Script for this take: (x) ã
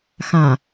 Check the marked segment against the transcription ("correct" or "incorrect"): correct